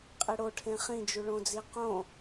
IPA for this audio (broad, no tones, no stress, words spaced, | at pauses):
qʼiɽoʈʰẽ χĩd͡ʒuɭõd͡zi qõ